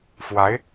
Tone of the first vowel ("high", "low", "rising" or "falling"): rising